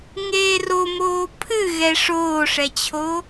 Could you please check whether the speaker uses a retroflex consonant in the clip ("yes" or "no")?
yes